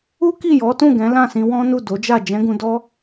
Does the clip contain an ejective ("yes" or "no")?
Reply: no